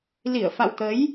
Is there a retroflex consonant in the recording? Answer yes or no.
no